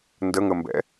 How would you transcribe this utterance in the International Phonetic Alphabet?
n d ə ŋ ə m b ɛ̰

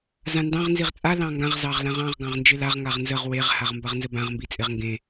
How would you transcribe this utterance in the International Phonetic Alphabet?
z ã n d ɑ̃ ʁ n z i ʁ t͡sʼ a l ɑ̃ ŋ ɡ ã ʁ z ɑ ʁ l ã ʁ ɑ̃ ʁ ɡ ɑ̃ ʁ n d͡ʒ ɪ l a ʁ ŋ a ʁ n z ə ʁ w e ʁ h a ʁ m b ɐ ʁ n z ə b ã ʁ m b i t͡sʼ ɪ ʁ ŋ ɡ ẽ

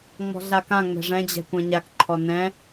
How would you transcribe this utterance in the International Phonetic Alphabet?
ŋ͡m ɔ̤ ɮ a k ã ŋ͡m ɛ̤ ʐ ɛ̃ d͡ʑ ɛ̤ kʷ ɛ̃ ɲ a k ǃʰ ɔ n ɛ̃

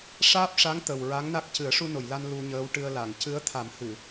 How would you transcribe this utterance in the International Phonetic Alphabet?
ʂ aː˦˥ p̚ ʂ a˧˥ ŋ t̪ ə˨˩ w ɹ a˧˥ ŋ n a˦˥ k̚ c ɨ˨˩˦ ə̯ ʂ u˧ n o˨˩˨ j l a˧ n l u˧ ɲ əː˧˥ w ʈ ɨ˧ ə̯ l a˨˩˨ ŋ c ɨ˧˥ ə̯ t̪ʰ a˨˩˦ m h ɨ˨˩˨

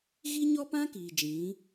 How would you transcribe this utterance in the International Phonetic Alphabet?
ɣ i˦ ɲ ɔ˦ p ã˦ k iː˨ d͡ʒ ĩ˨˦

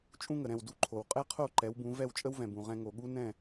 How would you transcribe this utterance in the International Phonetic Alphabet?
t͡ʃʼ ũ˥ ŋ ə˩ ɾ ɛ̃˥˩ w d u˥˩ ǃʰ o˩ w qʼ ɛ˥ qʰ o˥˩ ǃ ɛ˩˥ w b ũ˩˥ v ɛ˥˩ w t͡ʃʼ ə˥ w v ɛ̃˩ b ũ˩ ʁ ɛ̃˧ ŋ o˩ ɠ u˥ n ɛ̃˥˩

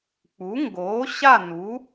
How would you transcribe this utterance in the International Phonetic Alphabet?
k͡p u˩˥ ŋ ɡ oː˩˥ ɕ a˥˨ n u˩˥

